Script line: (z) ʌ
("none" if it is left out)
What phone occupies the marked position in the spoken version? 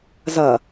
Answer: z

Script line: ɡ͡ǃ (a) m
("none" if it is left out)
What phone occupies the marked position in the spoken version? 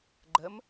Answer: ə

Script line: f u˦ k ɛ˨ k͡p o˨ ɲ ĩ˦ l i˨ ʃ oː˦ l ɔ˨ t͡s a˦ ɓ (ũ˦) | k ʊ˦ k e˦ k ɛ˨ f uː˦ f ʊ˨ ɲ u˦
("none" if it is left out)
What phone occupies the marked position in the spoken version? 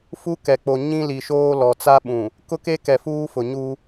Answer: ũ˨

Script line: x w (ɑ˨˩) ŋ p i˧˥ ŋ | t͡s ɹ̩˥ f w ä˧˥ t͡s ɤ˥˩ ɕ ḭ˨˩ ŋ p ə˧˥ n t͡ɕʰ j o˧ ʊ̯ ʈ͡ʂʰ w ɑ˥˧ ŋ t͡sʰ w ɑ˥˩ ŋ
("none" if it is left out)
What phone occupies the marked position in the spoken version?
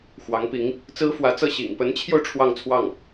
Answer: ɑ˧˥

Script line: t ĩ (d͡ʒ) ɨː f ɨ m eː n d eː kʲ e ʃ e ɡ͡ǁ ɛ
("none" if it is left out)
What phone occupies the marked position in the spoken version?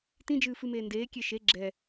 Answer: d͡ʒ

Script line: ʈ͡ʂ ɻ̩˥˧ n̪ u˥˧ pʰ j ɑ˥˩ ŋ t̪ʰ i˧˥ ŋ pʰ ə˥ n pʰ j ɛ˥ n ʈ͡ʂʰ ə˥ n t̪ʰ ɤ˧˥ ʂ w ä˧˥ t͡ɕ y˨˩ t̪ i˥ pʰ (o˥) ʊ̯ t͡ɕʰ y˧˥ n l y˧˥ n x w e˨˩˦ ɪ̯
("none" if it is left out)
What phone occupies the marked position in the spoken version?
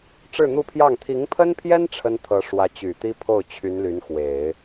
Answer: o˥˩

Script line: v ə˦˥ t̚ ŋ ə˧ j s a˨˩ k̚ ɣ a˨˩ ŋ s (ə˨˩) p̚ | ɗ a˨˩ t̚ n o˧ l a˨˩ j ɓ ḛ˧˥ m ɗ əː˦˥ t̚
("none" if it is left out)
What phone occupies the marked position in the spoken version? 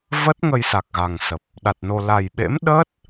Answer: ə˨˩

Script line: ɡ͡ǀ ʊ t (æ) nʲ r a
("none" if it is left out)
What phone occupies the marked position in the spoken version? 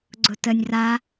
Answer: ə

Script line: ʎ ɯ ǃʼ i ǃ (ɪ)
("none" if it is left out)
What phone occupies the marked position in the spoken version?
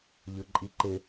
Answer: ɪ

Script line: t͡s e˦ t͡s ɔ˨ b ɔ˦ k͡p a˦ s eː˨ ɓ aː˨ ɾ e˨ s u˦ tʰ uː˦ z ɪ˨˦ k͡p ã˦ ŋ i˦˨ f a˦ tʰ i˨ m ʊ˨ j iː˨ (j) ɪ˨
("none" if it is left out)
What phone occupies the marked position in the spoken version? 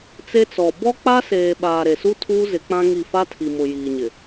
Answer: ɲ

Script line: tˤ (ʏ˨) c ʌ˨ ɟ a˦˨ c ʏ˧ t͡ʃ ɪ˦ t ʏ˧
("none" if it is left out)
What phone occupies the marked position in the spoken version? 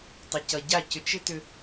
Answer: ɪ˨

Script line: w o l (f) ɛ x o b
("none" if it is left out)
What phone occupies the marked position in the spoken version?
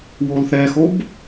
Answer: θ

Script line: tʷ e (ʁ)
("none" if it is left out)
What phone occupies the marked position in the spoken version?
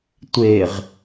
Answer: ʁ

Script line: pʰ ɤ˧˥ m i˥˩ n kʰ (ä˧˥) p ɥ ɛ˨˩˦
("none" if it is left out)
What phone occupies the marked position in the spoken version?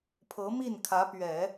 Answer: ä˧˥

